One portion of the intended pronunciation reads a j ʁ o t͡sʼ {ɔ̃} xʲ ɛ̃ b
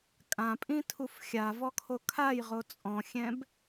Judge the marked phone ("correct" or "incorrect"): correct